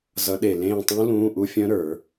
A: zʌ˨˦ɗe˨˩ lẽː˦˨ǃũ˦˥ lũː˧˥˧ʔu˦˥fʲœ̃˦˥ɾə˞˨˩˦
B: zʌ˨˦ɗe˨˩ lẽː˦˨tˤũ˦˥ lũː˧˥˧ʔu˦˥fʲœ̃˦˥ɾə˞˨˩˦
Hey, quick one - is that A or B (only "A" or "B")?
B